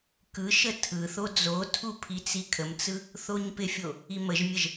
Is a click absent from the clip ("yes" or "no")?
yes